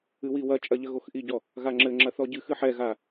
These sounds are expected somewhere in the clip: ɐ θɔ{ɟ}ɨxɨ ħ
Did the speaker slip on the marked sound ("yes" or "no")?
no